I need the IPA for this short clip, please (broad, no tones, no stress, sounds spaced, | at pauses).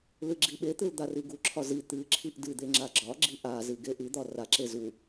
l ɨ ɡ͡ǁ i ɓ e t̪ ɨ l d̪ a r i ɡ u ǁʰ ɒ z i t̪ ɨ ǁʰ i ʔ d ɨ d̪ e ŋ͡ǁ a ɡ͡ǁ ɒ ɡ͡ǁ i ʔ a z ɨ ɡ e ʔ ɨ d̪ ɒ r a ǁ e z u